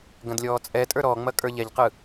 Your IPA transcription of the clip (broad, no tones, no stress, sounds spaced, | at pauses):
ɡ ɐ̃ d lʲ ɔː t͡sʼ ɛ tʼ ə˞ ɾ ɔ ŋ͡m ɐ kʼ ə˞ ʎ ɛ ʎ q ɯ